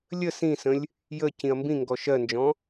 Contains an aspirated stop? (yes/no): no